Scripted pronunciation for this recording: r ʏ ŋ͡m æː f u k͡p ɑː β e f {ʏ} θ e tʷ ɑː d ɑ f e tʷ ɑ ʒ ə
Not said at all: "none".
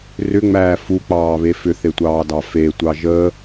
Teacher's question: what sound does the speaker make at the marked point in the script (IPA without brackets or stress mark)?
ʏ